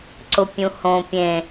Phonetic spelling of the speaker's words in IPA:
ǀ ʊ pʲ ũ h õ pʲ ẽ

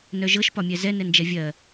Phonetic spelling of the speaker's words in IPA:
n œ ʒ ɤ ʃ p ɒ mʲ ɛ z ɛ n ɛ n d͡ʒ ɛ vʲ ɜ

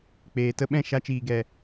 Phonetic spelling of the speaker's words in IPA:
k͡p eː˨ t ə˦ ɓ ɛ̃˦˨ ʃ a˧ t͡ʃ iː˨ ɡ ɛ˨

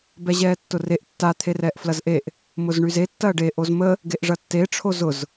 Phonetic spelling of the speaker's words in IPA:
b ɛ ʑ ɛː tː ʊ r e ʔ tː a t̪ʰ e r ɛː ʔ f l ɐ z ʔ e ʔ | m ʊ z ɳ y z e tː ɐː ɖ e ʔ o z m ə | ɡ e ʔ ʐ ɐ tː e ʈ͡ʂʰ o z ʊ z

